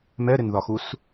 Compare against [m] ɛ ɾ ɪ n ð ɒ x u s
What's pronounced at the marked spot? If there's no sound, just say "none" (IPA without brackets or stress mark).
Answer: m